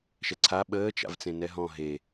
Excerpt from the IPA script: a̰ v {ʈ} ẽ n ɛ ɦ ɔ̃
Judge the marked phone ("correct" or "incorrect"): incorrect